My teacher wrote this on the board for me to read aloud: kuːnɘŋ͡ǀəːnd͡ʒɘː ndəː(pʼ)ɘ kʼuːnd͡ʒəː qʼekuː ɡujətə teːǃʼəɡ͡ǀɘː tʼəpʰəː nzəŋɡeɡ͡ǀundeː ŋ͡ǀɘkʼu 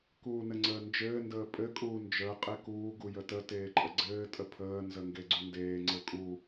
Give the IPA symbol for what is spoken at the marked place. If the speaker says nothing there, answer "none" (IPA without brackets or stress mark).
pʼ